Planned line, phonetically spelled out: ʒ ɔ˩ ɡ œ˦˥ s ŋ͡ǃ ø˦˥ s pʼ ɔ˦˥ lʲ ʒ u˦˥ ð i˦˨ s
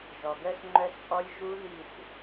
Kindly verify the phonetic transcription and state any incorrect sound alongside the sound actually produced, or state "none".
ø˦˥ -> œ˦˥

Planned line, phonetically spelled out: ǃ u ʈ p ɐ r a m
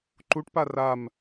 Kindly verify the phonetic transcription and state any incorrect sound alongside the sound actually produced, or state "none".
ɐ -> a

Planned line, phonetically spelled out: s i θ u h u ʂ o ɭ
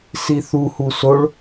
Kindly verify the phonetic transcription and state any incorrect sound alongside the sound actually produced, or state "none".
ʂ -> s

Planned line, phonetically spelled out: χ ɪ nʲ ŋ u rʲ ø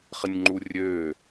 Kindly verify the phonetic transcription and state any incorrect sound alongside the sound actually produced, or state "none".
ŋ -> ŋ͡ǃ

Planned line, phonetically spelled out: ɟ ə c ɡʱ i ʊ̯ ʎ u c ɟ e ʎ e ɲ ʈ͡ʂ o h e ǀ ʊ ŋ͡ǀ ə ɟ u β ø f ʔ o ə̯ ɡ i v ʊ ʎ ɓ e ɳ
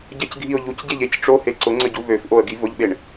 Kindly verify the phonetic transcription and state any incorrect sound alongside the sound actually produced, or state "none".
ɲ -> c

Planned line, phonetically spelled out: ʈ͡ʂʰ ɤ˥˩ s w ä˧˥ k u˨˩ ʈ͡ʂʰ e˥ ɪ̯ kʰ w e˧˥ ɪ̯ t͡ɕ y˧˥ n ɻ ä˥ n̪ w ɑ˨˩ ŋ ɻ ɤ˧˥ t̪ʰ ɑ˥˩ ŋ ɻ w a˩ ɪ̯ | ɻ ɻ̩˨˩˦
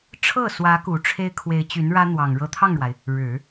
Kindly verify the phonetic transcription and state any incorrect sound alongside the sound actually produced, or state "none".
none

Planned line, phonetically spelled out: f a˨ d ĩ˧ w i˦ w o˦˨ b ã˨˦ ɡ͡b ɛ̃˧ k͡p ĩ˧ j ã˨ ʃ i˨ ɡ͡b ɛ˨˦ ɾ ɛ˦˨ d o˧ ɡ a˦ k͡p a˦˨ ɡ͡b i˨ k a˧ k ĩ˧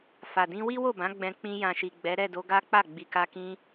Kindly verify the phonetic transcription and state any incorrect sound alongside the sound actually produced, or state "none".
none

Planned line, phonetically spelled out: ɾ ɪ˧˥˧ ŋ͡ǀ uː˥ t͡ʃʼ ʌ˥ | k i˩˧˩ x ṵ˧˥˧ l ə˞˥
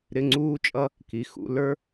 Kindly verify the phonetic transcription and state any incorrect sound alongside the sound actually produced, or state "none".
none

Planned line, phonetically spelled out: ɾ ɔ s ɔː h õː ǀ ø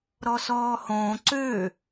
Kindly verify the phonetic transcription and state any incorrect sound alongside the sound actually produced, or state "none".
none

